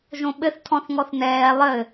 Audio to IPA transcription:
ʒ õ ɓ ɘ θ tʰ ɔ̃ θ ŋ ɔ θ n ɛː lˠ ɘ

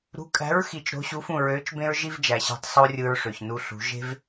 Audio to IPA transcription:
ɾ ṳ˨˥ kʼ æ̤˨˥ ɹ x i˨˩˦ t͡ʃ ɾ o̤˨˥ ɕ u˨˥ f ũ˥˩ ɹ ø˨˥ t͡ʃ b ẽ˥ ɹ ʒ i˥ v d͡ʒ æ˨˩ ɕ æ̤˧ tˤ sˤ o˥ rʲ ɯ˧ ɹ ʂ ø˨˩ ç n u˧ ɬ ṳ˨˩˦ ʒ e̤˥ v

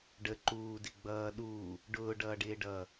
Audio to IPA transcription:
ɖ ə ǃ uː d ɪ ɡ͡b ʌː ɗ uː | ɖ ʊː ɖ ʌː ɖ ɪː ɖ ʌː

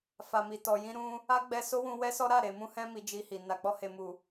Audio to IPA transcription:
f a˨ m i˨ t ɔ˨ j ĩ˧ ɾ ũ˧ | a˦ ɡ͡b ɛ˧ s o˦ w ũ˧ w ɛ˦ s ɔ˦ ɾ a˦˨ ɾ e˨ m ũ˧ h ɛ̃˧ m i˧ d͡ʒ i˧ h i˨ n a˨ k͡p ɔ˧ h e˨ m u˨

